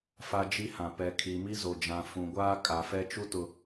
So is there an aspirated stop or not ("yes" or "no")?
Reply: yes